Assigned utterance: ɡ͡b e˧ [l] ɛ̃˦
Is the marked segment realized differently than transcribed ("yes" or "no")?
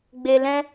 no